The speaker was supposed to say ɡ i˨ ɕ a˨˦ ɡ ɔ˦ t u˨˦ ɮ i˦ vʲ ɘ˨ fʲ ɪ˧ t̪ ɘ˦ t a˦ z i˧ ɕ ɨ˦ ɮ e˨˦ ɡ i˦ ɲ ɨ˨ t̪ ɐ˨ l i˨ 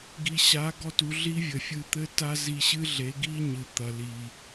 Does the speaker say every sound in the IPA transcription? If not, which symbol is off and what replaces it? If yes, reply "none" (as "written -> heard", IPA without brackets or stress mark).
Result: ɪ˧ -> ɨ˧